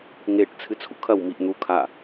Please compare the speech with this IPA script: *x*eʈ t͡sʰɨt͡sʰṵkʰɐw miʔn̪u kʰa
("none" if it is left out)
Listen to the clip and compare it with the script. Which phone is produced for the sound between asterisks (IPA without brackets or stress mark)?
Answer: ŋ